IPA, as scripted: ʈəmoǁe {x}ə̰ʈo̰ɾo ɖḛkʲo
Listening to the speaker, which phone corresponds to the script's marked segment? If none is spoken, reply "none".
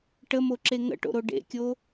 ŋ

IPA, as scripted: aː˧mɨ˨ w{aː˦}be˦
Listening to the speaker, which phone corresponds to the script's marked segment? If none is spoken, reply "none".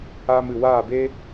aː˦˨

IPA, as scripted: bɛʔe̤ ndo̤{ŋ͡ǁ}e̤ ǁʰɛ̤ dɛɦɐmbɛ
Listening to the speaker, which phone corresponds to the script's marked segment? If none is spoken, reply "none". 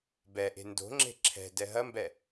ŋ͡ǁ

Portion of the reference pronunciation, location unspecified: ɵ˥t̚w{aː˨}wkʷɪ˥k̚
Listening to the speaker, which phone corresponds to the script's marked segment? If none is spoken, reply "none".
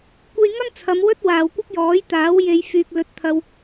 aː˨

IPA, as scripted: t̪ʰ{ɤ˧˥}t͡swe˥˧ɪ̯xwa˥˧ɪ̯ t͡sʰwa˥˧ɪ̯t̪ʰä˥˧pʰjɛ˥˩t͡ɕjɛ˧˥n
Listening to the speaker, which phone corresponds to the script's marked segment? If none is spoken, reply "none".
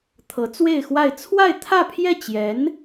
ɤ˧˥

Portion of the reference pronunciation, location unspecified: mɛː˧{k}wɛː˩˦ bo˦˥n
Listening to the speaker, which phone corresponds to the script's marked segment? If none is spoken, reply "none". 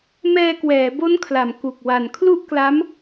k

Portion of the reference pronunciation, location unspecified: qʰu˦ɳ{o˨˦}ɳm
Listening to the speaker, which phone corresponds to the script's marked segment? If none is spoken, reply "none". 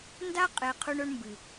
o˦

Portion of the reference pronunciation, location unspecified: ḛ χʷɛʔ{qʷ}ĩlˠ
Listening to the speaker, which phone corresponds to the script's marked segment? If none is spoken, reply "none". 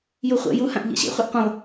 qʷ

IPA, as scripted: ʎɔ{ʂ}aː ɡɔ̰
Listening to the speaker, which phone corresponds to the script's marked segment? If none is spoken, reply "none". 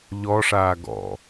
ʂ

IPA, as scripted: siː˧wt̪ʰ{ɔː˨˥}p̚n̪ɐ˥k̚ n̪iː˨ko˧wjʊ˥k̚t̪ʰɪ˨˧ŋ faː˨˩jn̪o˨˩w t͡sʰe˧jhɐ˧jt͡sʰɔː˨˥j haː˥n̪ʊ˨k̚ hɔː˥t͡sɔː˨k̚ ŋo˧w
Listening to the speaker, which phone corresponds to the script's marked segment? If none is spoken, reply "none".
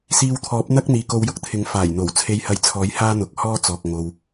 ɔː˨˥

